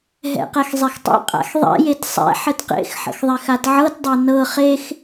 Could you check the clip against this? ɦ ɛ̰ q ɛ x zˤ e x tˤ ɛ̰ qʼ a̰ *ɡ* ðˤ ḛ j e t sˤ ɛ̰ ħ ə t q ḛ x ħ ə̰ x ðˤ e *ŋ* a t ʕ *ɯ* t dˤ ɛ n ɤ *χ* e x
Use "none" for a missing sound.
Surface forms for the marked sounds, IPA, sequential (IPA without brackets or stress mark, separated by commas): x, x, ɤ, χ